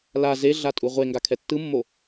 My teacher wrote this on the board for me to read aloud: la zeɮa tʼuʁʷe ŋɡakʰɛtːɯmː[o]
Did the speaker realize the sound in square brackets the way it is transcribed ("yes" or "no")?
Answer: yes